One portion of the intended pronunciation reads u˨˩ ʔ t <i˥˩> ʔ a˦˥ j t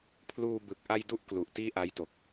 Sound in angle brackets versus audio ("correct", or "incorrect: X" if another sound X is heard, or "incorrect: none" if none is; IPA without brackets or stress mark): incorrect: iː˥˩